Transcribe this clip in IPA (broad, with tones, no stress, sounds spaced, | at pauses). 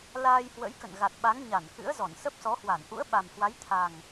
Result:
l aː˧ j h w ə̰˧˥ j k ə̰˧˨ n ɣ a˨˩ t̚ ɓ a˨˦ ŋ ɲ a˧˩ n k ɨ̰˧˥ ə̯ z ɔ˧˩ n s ə˦˥ p̚ s ɔ˨˦ h w a˧˩ n ʔ ṵ˧˥ ə̯ ɓ a˨˩ m h w a˨˦ j t̪ʰ a˨˩ ŋ